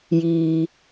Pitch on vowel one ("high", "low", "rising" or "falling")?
low